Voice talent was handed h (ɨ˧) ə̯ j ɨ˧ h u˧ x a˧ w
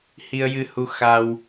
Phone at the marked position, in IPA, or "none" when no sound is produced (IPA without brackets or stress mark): i˧